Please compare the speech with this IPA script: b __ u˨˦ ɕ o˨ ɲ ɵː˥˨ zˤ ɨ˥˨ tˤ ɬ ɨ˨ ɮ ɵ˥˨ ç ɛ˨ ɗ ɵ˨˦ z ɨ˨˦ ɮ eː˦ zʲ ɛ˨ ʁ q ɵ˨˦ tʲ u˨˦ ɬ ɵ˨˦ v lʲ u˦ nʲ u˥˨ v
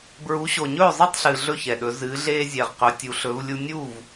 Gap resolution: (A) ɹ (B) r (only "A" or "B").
A